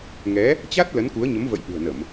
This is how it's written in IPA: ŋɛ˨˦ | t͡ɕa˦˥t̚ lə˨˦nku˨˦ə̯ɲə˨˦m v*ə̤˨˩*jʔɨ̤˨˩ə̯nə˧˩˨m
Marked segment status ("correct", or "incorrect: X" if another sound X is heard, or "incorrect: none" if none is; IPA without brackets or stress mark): incorrect: ə̰˧˨